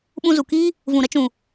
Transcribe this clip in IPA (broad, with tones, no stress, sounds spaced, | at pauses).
ɓ ũ˧ z u˨ k iː˦ | v ũ˨ ɾ ə˧ t͡ʃ ũ˨